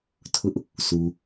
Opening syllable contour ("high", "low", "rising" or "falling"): high